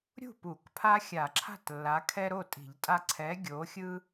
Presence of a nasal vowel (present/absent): absent